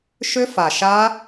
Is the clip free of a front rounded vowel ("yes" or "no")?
no